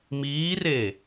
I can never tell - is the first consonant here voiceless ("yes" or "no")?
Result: no